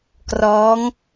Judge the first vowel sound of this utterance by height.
mid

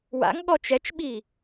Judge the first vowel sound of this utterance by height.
low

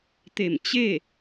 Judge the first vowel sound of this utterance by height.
mid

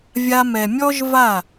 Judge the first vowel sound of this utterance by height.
low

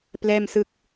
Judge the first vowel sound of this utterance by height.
mid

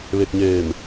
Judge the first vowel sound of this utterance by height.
mid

